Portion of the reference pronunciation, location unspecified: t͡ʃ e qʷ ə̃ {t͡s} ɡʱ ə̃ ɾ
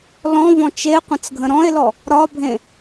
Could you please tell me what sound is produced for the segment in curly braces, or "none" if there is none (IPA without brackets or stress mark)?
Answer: t͡s